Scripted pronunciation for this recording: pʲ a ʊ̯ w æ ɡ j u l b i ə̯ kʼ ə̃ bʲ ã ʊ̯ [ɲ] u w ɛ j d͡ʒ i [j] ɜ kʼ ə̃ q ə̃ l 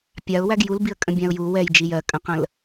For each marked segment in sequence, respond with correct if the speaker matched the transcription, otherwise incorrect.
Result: incorrect, correct

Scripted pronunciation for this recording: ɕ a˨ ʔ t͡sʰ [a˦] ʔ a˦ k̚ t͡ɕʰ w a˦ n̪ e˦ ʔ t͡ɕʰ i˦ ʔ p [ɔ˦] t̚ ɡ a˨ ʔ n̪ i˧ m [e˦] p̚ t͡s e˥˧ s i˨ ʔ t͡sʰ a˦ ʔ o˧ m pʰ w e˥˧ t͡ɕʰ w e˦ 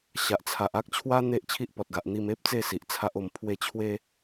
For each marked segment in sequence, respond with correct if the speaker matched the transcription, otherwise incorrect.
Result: incorrect, incorrect, correct

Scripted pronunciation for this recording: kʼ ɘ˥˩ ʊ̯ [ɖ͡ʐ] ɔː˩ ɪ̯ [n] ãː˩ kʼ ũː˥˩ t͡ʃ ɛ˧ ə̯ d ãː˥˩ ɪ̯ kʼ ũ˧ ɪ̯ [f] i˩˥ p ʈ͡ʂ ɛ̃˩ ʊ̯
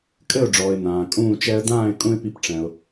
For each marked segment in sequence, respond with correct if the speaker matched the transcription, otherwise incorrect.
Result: correct, correct, incorrect

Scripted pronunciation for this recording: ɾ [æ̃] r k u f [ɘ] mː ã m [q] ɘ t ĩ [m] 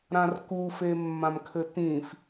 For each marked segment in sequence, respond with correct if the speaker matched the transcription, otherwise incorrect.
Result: incorrect, incorrect, incorrect, incorrect

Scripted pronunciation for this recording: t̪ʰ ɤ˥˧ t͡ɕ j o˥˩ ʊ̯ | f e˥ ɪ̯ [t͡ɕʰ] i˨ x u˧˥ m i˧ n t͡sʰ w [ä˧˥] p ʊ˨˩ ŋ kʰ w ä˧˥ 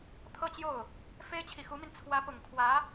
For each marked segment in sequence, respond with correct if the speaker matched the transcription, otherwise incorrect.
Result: correct, correct

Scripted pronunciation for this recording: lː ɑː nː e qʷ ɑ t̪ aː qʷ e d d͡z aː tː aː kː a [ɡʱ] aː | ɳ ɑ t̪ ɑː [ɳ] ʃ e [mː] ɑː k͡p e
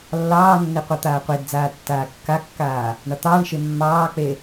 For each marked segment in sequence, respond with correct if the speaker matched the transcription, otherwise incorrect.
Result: incorrect, correct, correct

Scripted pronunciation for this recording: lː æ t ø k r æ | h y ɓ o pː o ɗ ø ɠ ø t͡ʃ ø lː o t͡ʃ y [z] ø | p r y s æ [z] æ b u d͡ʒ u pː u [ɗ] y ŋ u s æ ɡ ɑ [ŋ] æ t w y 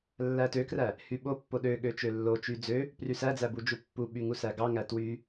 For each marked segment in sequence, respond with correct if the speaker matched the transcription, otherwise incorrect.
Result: incorrect, incorrect, incorrect, correct

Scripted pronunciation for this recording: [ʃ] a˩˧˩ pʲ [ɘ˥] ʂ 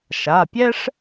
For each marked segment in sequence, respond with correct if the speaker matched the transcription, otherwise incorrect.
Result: correct, incorrect

